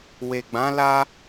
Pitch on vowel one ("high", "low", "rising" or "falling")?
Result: low